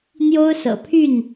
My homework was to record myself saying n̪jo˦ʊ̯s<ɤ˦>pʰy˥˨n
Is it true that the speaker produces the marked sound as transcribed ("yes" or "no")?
no